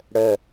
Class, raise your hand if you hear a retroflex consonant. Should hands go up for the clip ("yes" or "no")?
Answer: yes